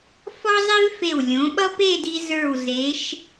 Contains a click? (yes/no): no